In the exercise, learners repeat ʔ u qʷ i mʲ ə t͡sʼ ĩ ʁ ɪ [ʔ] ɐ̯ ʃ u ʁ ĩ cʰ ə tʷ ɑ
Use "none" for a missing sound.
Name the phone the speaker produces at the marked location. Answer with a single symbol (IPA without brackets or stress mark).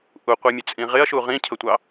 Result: none